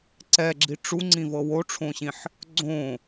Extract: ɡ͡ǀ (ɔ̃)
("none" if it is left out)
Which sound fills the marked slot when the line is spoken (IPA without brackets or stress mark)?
õ